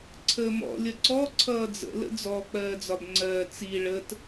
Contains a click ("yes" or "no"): yes